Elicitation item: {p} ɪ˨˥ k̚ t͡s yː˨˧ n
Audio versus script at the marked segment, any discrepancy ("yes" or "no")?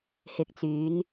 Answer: yes